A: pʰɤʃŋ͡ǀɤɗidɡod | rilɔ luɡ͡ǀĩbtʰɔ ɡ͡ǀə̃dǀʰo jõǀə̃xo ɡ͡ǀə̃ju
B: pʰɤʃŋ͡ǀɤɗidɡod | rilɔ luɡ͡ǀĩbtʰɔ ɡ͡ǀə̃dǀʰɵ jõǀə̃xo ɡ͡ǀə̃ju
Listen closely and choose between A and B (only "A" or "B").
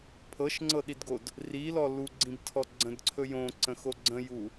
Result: B